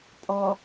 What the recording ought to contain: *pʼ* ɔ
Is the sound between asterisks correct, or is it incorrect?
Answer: correct